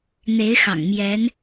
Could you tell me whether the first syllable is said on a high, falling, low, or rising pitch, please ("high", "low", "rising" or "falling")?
rising